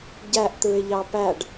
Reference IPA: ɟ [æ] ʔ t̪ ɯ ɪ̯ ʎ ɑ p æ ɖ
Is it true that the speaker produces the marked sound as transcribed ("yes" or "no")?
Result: yes